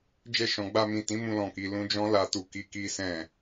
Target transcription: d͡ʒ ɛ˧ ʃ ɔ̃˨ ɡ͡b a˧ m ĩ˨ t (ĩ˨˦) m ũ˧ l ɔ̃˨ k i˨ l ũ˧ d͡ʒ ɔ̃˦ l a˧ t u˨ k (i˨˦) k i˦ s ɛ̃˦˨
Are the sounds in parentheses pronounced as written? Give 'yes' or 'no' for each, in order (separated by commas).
yes, yes